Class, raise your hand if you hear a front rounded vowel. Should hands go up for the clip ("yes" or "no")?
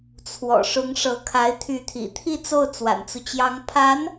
yes